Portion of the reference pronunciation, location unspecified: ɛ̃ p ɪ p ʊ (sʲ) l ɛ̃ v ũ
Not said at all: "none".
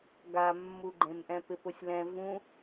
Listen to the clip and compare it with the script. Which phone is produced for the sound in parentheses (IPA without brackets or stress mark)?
sʲ